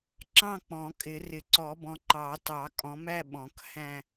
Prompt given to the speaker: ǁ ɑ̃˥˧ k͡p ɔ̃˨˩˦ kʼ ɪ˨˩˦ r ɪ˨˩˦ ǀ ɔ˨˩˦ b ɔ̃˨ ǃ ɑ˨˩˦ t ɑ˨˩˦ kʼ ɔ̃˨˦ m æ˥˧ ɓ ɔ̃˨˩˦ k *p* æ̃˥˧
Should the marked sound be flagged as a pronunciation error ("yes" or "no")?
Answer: yes